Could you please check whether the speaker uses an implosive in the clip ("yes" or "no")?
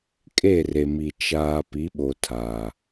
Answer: yes